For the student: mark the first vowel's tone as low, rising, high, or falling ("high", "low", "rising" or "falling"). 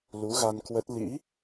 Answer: rising